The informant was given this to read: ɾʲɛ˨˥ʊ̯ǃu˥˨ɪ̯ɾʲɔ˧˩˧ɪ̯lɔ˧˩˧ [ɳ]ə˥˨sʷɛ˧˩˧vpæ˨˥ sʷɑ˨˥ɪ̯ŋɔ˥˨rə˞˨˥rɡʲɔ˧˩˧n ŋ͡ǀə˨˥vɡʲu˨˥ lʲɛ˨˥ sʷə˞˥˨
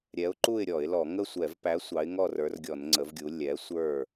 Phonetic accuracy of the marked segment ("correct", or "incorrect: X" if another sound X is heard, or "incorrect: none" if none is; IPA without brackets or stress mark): incorrect: ŋ